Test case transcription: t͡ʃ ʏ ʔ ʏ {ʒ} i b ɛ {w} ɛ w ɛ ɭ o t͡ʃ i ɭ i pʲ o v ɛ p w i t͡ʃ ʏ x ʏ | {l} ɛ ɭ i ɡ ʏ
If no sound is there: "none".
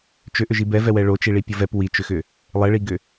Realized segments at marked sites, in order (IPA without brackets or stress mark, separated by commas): ʒ, v, lˠ